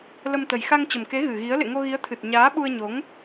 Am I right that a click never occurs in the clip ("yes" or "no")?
yes